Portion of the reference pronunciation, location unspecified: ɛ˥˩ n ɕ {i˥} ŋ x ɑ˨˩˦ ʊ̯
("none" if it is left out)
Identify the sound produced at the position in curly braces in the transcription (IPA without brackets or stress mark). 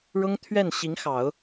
i˧˥